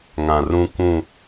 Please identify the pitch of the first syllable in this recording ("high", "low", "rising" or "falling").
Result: low